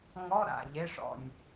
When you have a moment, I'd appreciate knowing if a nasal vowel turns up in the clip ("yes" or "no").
no